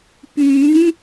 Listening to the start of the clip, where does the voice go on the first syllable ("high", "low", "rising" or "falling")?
rising